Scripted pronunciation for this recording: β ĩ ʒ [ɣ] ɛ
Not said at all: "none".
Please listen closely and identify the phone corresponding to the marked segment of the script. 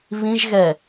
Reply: ɣ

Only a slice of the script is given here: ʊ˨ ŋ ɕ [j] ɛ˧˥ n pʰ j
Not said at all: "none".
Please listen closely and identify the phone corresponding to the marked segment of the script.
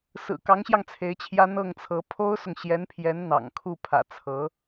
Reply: j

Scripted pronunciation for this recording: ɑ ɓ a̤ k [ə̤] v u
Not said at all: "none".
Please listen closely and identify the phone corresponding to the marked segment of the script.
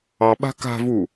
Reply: a̤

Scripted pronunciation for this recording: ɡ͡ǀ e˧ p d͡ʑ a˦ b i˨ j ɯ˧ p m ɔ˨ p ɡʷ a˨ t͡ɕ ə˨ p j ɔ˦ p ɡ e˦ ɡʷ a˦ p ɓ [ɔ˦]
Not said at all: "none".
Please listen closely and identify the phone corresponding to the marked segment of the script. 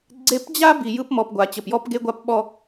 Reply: ɔ˦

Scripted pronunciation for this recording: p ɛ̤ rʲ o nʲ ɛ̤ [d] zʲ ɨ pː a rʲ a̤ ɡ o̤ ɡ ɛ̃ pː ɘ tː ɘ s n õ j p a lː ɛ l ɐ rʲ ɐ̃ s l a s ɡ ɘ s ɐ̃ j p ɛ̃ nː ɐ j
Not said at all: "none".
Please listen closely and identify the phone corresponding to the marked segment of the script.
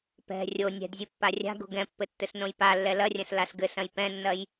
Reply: d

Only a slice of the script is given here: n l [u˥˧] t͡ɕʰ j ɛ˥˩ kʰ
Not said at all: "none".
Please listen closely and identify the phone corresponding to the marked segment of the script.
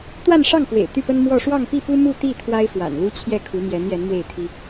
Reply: u˥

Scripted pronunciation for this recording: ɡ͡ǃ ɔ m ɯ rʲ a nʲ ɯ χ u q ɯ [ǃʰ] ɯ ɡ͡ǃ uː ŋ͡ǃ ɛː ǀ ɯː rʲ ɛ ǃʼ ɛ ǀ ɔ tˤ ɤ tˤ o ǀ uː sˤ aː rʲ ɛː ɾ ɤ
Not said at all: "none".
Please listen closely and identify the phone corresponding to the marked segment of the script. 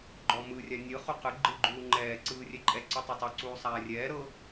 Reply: ɡ͡ǃ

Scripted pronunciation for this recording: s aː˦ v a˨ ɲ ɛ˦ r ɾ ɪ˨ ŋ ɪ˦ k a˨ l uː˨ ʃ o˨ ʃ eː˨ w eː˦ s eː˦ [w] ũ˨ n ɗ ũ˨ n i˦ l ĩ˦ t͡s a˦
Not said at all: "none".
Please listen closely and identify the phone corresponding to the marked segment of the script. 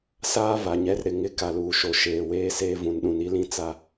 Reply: v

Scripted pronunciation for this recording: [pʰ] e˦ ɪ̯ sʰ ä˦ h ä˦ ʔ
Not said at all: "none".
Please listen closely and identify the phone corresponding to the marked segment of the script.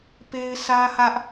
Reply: p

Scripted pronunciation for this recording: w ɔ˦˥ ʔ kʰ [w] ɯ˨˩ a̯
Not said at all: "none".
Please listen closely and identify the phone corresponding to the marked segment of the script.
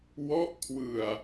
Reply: w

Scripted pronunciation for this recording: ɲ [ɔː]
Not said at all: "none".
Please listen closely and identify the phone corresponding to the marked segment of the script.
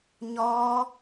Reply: ɔː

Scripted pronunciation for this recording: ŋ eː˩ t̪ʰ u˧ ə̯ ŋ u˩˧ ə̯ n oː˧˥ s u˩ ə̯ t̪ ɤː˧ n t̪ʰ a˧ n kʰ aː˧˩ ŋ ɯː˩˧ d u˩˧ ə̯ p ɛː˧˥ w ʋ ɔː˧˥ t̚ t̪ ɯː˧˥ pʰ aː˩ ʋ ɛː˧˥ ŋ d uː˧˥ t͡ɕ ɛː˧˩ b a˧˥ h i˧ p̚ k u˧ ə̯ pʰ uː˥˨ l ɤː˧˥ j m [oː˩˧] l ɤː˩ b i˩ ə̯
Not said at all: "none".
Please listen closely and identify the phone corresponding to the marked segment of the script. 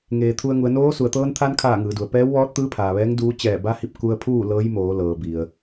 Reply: oː˩˧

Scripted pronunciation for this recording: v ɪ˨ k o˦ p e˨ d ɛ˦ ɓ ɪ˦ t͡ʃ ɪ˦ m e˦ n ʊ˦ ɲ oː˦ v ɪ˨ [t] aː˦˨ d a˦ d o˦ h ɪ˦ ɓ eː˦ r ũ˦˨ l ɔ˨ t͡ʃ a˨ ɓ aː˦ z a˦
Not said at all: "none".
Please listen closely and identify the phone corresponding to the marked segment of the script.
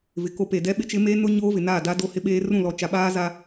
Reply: n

